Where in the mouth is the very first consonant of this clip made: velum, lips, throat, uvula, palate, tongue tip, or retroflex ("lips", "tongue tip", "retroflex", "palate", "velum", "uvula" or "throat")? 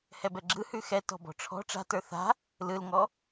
throat